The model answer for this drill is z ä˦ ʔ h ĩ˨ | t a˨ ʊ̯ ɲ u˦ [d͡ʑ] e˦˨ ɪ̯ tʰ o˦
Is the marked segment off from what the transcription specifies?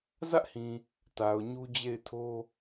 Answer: no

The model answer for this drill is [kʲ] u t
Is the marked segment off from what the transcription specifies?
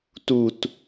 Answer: yes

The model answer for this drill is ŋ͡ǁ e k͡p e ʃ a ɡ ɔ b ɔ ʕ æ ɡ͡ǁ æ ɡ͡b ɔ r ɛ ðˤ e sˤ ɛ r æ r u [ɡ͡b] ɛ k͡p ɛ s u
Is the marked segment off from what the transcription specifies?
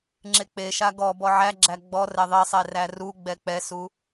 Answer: no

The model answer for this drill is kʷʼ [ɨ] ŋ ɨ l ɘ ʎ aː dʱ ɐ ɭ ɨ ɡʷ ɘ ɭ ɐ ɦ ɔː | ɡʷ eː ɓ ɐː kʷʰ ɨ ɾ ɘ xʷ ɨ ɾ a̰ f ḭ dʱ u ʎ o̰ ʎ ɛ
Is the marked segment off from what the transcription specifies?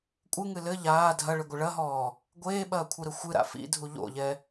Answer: no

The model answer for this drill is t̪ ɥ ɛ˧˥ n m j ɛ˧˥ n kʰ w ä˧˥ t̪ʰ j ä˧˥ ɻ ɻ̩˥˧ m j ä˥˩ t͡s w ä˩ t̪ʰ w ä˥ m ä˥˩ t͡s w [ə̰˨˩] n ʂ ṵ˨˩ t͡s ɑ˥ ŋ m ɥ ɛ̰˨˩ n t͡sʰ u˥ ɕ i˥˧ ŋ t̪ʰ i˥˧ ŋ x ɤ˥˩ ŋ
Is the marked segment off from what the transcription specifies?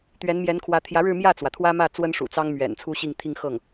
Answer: yes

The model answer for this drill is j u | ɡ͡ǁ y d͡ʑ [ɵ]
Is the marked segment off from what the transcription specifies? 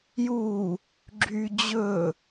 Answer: no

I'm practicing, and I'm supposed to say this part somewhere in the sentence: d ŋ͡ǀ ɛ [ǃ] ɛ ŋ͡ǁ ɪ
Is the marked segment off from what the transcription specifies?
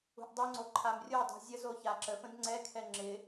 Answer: yes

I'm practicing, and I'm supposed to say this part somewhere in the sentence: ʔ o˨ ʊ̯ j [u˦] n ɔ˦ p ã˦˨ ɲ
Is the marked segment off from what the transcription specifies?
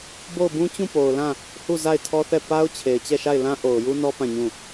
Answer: no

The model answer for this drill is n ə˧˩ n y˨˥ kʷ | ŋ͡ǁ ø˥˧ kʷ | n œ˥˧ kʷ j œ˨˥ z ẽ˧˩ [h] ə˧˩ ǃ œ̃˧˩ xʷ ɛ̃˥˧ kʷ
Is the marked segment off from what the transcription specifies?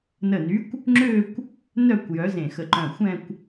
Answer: yes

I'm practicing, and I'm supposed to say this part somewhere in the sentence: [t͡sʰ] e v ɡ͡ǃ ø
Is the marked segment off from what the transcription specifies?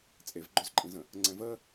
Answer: yes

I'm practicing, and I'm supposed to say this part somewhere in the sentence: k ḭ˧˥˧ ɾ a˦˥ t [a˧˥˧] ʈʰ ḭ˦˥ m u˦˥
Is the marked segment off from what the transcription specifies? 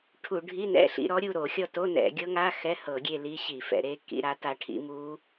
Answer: yes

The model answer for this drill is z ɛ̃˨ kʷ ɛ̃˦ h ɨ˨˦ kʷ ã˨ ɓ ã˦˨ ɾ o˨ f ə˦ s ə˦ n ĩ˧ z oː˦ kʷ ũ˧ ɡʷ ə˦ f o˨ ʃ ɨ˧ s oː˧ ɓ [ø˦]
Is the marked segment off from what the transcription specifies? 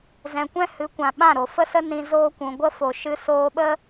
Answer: yes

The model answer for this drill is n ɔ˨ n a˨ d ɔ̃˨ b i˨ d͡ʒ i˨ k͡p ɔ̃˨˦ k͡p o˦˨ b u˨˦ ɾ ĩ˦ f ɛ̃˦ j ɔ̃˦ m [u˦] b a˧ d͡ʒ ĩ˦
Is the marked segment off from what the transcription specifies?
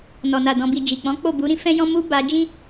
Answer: no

